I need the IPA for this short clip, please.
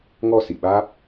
ŋ ɔ˧ s ḭ˧˨ ɓ aː˦˥ p̚

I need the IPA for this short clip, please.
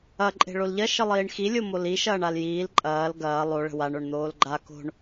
ɐ ǃʼ e̤ ɭ o l ʎ ɐ ʃ ə lˠ iː ɳ x i lʲ o m o l i ʃ ɐː ɳ a l j iː l ǃʼ ɐː l ɡ ɐː lˠ o ɭ ə̤ w a ɳ o ɳ n̪ oː l ɡ͡ǃ a k o̤ ɳ

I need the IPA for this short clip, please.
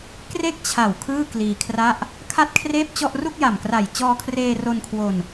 k r e˥˩ k̚ t͡ɕʰ a˨˩ w kʰ ɯː˥˩ k l iː˧ kʰ r a˥˩ ʔ | kʰ a˥˩ t̚ kʰ r eː˥˩ p̚ t͡ɕ ɔ˥˩ ʔ r u˥˩ k̚ j a˨˩ m k r a˨˩ j t͡ɕ ɔː˧ kʰ r eː˧ r o˧ n kʰ w o˧ n

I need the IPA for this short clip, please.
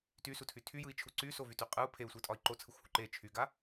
t y s u tʰ y tʰ y j ɯ i̯ t͡ʃʰ u ǀ y s o v y t y qʼ ɯ u̯ pʰ e u̯ sʷ ɯ tʼ ɒ i̯ ǃ o t͡sʰ ɯ xʷ h u ǃ e t͡ʃʰ y ɡ a

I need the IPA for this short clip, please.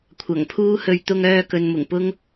kʷʰ ɐ˨˩ ŋ pʰ uː˥ h ɵ˧ ɥ t̪ ʊ˧ ŋ œː˧ k ɵ˨ n m ʊ˨˩ ŋ p ʊ˥ ŋ

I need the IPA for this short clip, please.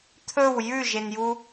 t̪ʰ ɵ w j ʉ ʒ e n j u

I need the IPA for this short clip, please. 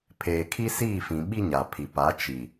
pʰ eː˨ kʰ i˦ s iː˦˨ f ĩ˨ ɓ i˦ ɲ a˨ pʰ i˨ p a˨˦ t͡ʃ i˨

